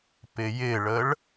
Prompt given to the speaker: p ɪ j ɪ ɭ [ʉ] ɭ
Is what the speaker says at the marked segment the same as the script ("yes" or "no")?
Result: no